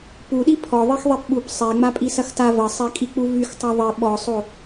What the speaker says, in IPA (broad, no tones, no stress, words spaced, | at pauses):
puɗi pʰɔ ðˤixðˤɛpɓup sˤɛŋ͡mapʼi sɐxta vɐsˤɛkʼik͡pu vyxtˤa ðˤi ɓɔsˤo